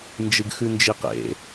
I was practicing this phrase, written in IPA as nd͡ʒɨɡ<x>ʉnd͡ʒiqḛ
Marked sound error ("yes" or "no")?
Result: no